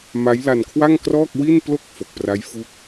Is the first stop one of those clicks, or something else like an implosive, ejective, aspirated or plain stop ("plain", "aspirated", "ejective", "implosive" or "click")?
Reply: aspirated